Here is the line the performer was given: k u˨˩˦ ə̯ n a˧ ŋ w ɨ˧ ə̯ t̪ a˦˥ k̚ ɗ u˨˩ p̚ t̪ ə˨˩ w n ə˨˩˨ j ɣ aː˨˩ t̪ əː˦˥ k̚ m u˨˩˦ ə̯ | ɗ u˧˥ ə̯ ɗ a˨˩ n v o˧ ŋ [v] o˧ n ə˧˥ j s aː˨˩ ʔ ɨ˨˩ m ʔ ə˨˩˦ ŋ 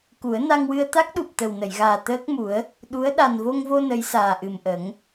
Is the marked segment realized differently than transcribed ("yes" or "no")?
no